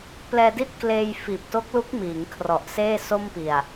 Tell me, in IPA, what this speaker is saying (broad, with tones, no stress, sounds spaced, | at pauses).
p l ɛː˧ d i˥˩ t̚ k l eː˧ j f iː˨˩ p̚ t o˦˥ k̚ l u˦˥ k̚ m iː˩˦ ŋ kʰ r ɔ˨˩ ʔ s eː˥˩ s o˥˩ m p i˨˩ a̯